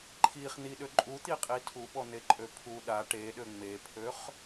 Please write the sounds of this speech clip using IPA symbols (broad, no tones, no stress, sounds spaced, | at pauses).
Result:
ǃʰ i χ n̪ i ɗ ø ǃʼ u t̪ i qʼ i tʰ u ɓ ɔ n̪ e ǃʼ ø pʰ u ɗ a ʈ e ɗ ø ŋ͡m e pʰ ø χ